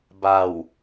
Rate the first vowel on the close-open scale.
open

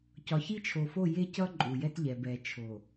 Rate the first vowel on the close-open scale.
open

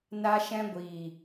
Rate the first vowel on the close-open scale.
open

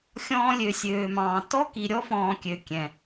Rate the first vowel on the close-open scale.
mid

